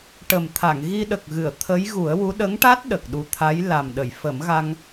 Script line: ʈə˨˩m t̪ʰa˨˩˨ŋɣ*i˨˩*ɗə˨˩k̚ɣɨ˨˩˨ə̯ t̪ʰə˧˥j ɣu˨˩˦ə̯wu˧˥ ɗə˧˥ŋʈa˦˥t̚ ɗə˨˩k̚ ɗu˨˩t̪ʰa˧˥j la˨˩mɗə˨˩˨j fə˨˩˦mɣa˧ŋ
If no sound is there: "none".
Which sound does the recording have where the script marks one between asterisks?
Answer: i˧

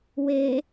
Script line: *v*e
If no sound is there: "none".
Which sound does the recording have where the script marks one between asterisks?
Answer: w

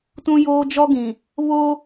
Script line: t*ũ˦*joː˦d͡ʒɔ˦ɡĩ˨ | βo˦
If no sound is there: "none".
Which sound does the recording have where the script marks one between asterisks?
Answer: ũ˦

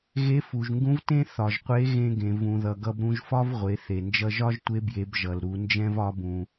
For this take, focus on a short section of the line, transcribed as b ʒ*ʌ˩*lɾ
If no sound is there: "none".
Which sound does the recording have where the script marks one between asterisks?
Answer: ʌ˩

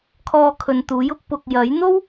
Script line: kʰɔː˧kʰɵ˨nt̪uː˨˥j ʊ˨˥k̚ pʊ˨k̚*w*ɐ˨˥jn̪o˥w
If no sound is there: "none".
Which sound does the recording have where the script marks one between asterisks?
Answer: j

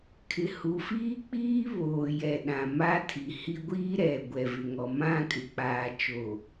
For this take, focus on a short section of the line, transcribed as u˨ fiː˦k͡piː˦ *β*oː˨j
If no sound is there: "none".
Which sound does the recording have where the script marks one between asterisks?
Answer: β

